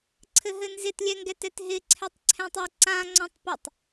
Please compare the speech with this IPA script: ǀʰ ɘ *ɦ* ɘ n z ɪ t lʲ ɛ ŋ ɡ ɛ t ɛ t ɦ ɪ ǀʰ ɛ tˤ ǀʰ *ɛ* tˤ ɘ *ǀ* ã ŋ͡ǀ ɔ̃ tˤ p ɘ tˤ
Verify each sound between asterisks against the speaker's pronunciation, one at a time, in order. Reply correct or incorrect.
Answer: correct, incorrect: ɛ̃, correct

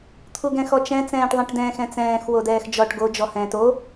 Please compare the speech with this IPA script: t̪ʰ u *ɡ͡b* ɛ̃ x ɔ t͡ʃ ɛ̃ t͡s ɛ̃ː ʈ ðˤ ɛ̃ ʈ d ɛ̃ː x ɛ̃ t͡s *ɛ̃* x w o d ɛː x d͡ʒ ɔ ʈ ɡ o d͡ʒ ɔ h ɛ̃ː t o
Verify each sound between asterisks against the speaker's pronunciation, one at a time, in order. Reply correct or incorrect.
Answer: incorrect: ɡ, incorrect: ɛ̃ː

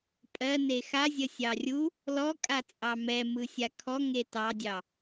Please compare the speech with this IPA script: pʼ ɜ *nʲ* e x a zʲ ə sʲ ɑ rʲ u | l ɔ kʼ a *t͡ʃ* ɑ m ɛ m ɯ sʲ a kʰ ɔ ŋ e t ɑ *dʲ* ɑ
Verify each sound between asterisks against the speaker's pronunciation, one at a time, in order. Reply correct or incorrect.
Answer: incorrect: n, incorrect: t͡sʼ, correct

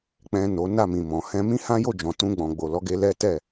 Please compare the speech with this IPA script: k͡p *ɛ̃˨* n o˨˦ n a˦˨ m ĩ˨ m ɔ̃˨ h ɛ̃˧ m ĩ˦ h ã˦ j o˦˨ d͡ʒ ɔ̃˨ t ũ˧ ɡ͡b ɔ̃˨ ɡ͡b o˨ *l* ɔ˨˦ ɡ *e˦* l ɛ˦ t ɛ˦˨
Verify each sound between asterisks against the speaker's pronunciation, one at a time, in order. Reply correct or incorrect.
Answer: correct, correct, incorrect: e˧

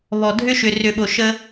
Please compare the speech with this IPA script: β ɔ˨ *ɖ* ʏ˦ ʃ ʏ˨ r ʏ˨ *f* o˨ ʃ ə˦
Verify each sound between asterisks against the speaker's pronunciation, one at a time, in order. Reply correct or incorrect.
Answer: incorrect: dʱ, incorrect: ɓ

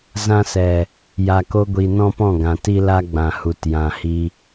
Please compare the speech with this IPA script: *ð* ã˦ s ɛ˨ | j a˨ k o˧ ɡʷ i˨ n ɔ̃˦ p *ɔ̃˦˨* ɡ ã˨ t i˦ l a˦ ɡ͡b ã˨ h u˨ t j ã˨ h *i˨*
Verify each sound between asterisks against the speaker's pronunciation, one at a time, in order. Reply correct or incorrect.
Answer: incorrect: z, correct, incorrect: i˧

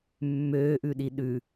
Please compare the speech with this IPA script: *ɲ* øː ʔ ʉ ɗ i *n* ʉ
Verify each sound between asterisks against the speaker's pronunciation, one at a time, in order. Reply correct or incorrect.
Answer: incorrect: mː, incorrect: ɗ

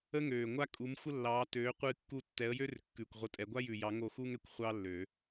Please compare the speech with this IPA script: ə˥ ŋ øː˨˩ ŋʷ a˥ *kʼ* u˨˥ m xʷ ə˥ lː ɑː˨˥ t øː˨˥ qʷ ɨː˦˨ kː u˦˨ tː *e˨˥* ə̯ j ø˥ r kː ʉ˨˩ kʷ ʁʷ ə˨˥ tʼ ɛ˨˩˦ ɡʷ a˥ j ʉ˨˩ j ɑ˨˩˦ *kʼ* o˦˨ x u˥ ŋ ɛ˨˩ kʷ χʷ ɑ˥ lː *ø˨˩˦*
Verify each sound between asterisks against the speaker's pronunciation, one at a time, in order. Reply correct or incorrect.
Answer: correct, incorrect: ɛ˨˥, incorrect: ŋ, correct

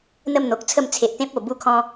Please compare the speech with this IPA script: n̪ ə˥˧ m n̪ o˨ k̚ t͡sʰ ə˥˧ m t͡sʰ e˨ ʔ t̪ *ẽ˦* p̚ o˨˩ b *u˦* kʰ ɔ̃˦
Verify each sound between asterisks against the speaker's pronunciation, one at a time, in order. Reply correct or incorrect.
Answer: correct, correct

